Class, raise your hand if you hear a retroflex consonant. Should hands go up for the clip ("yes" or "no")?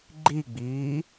no